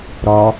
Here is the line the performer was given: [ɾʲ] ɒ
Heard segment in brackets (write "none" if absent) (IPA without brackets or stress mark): ɾ